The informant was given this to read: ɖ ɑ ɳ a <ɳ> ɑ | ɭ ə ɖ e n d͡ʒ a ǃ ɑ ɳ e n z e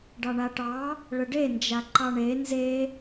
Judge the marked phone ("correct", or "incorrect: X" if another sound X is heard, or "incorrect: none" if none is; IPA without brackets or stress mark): incorrect: ʈ